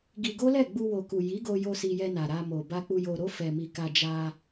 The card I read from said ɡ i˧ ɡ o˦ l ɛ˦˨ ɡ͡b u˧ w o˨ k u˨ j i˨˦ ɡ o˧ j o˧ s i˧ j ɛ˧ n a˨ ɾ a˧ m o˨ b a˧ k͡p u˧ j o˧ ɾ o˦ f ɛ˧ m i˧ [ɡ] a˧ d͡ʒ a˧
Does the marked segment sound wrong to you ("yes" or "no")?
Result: yes